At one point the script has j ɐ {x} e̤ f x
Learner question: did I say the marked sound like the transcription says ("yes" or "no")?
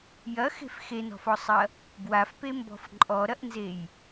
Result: yes